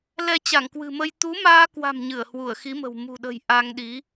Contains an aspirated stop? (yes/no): no